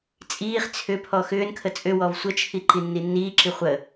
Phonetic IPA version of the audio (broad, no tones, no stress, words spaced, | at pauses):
t͡sʼiːχ t͡sʰʏ pʰɔxʏːnkʰə t͡sʼʏwɔv sʷət͡ʃʰi ǃinːinːiːǁi χʷə